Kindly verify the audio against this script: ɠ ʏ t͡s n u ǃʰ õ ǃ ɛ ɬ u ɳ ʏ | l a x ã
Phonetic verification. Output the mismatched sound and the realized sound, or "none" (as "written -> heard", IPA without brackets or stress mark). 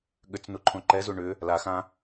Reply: ɬ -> z